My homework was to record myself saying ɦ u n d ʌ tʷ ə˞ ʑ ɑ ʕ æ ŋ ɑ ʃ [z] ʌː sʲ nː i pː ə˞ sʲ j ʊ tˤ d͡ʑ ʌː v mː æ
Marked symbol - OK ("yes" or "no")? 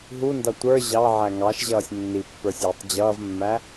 no